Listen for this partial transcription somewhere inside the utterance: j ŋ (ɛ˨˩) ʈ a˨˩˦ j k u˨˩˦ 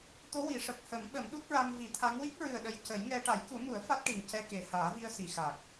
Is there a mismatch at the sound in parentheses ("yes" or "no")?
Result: yes